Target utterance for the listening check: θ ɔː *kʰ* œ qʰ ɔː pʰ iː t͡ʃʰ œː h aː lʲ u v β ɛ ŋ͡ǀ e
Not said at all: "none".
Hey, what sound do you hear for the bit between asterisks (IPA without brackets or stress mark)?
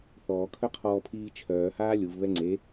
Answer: kʰ